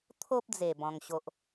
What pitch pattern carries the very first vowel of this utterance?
high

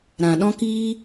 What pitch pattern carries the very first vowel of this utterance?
low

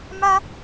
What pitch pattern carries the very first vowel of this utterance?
high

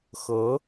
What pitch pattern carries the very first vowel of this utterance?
rising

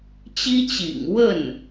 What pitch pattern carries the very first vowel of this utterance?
high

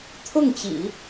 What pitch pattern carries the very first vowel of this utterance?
falling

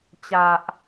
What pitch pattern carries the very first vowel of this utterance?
low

